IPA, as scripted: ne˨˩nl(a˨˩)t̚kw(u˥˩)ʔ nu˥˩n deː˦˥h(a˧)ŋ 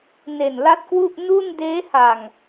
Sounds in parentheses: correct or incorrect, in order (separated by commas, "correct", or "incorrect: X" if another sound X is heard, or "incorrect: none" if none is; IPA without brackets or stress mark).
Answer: incorrect: a˦˥, correct, incorrect: a˨˩